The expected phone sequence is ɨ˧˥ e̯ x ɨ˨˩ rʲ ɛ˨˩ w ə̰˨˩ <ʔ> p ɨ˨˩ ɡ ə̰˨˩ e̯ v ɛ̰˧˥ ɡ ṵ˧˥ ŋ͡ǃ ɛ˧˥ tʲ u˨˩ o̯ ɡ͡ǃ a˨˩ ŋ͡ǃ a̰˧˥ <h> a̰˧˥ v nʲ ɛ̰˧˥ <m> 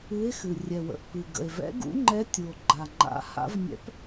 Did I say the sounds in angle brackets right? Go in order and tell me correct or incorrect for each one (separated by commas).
correct, correct, incorrect